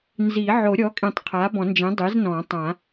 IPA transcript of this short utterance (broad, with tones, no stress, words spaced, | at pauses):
nzi˨˩˦ ʕo˨˩˦ɾʲɔ˩˥kʼĩ˨˩˦tˤ qʰa˩˥bɔ̃˨˩˦nd͡ʒĩ˩˥ dˤi˩˥znɔ̃˨˩˦tˤã˨˩˦